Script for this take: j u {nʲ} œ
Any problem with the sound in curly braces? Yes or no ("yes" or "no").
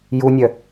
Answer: no